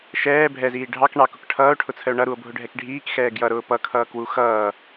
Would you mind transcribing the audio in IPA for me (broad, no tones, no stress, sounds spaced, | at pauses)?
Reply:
ʃ ɛː bʱ ɛ z iː ɖʱ ɑ k ɳ ɑ k ʊ k ʈʰ ʌː o̯ ʈʰ ʊ t͡sʰ ə o̯ ɳ ʌ ɾ u o̯ bʱ ʊ ɖʱ ɛ k ɖʱ iː k x ɛː ɡ j ʌ ɾ ʊː p ʌ kʰ ʌː k w u x ʌː